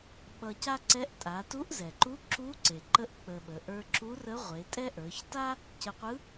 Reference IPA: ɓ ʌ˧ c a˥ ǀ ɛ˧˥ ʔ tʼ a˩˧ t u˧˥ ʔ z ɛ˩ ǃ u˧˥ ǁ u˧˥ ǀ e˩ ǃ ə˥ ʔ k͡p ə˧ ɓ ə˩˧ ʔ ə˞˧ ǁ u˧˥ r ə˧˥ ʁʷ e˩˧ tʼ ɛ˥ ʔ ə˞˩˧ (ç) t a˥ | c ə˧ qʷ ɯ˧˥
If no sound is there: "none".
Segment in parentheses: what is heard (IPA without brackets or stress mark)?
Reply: ç